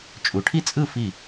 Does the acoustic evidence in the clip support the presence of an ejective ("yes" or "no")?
yes